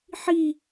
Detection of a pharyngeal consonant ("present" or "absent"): present